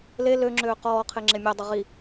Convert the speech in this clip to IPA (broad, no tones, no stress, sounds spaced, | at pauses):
l e l ø ŋ͡ǁ øː q ɔː qʰ e ŋ͡ǁ e mʲ ɔ dˤ ə ʁ i